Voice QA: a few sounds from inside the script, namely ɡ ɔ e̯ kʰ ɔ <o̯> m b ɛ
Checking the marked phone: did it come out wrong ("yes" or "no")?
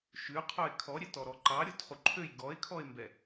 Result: yes